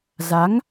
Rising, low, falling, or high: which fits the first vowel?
rising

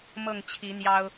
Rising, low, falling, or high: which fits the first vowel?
falling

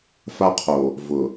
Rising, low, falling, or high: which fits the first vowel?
high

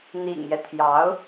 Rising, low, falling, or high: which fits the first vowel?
low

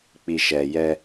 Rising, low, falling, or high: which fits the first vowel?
low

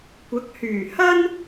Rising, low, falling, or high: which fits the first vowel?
rising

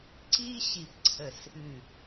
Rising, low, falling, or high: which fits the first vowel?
high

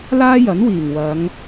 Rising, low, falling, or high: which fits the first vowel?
high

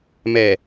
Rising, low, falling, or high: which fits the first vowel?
low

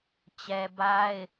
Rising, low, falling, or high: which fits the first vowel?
low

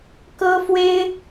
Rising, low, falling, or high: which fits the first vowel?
high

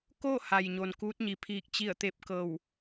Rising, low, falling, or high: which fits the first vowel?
falling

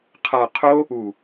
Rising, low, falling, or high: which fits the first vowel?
low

